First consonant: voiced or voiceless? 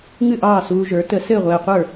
voiced